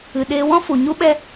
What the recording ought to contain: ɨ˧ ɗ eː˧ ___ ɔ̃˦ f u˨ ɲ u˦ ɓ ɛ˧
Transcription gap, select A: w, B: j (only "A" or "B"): A